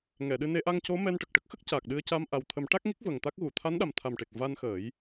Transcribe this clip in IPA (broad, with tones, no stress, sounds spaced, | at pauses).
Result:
ŋ ɛ˨˩˨ ɗ ɨ˧ n e˧˥ ʔ a˧ ŋ c o˧˥ m ɛ˧ n ʈ ə˨˩ k̚ ʈ ə˦˥ k̚ x ə˦˥ k̚ c aː˨˩ k̚ ɗ ɨ˧ ə̯ c a˧ m ʔ a˨˩ w t̪ʰ ə˨˩˦ m ʈ a˦˥ k̚ ŋ i˦˥ k̚ v ə˨˩ ŋ t̪ a˦˥ k̚ ɣ u˨˩˨ t̪ʰ a˧˥ n ɗ a˨˩ m t̪ʰ a˨˩ m ʈ e˨˩ k̚ v a˧ n x əː˨˩˦ j